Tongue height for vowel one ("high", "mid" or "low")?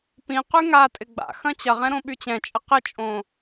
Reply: high